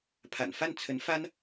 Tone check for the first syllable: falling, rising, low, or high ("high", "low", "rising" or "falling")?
low